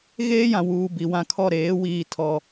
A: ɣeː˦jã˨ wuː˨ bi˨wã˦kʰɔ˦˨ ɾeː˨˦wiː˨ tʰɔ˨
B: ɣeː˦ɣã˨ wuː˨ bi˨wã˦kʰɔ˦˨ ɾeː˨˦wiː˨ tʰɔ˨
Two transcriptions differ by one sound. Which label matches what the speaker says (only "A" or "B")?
A